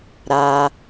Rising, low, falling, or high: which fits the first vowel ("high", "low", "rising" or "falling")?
high